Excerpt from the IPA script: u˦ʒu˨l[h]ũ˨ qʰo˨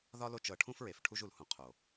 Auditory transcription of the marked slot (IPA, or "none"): h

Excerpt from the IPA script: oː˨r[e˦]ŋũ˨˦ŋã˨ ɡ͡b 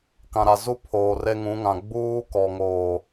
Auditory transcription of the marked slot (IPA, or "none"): e˦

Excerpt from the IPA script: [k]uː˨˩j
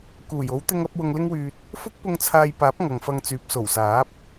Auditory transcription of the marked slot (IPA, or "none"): k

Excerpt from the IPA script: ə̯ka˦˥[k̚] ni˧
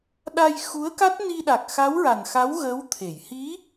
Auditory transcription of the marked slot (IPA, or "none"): t̚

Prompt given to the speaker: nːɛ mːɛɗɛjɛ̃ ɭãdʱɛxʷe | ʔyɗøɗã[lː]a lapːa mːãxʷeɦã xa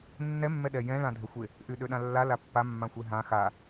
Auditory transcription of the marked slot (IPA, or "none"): lː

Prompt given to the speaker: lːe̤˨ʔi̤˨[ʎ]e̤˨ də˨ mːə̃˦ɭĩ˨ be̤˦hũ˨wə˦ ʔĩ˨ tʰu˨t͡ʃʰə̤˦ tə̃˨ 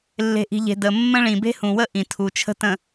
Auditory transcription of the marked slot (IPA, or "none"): ʎ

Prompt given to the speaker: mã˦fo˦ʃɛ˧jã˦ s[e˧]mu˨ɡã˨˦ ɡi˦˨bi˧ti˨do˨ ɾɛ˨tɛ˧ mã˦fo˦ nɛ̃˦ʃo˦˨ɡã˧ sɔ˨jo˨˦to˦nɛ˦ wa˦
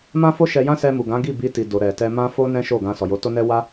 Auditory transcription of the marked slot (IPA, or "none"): ɛ˧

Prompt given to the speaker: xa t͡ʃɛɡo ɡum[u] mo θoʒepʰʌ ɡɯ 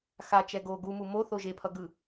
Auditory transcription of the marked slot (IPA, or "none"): u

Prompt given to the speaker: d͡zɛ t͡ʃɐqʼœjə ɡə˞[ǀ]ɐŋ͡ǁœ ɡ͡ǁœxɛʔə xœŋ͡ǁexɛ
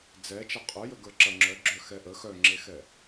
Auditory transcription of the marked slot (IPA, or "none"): ǁ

